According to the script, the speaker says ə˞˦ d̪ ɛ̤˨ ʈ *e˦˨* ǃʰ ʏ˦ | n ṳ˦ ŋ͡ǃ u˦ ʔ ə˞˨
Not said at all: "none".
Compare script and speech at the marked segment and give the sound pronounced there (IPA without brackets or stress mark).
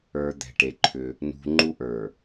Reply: e˨